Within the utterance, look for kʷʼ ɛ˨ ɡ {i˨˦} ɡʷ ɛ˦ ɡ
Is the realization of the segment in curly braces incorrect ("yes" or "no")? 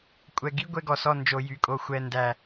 yes